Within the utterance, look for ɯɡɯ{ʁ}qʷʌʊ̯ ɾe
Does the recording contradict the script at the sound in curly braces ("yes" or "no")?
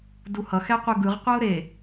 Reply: no